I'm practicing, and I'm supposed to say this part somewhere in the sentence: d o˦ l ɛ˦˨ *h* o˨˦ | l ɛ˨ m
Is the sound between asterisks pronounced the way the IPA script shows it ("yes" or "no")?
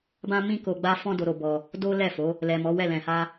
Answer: no